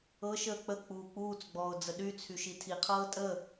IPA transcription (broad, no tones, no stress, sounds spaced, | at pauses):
ɤ ʃ əː k͡p ə k͡p uː k͡p uː t͡s ɡ͡b ɔː ʊ̯ d͡z ə ɗ y t͡sʰ y ʃ i tʰ i qʰ ɤː tʼ ə